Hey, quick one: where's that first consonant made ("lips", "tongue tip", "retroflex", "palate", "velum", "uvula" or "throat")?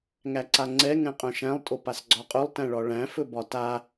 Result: velum